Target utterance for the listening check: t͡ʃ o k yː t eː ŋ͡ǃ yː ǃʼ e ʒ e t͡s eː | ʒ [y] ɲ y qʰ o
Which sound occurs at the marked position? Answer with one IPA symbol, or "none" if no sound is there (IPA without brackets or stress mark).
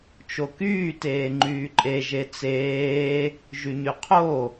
y